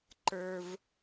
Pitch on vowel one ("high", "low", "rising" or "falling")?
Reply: high